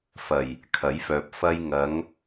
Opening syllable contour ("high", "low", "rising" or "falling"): low